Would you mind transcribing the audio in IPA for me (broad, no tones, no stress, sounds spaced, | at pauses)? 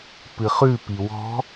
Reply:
p ɨ χ ʉ p i w ɔ̤